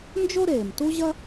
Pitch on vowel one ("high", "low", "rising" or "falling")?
high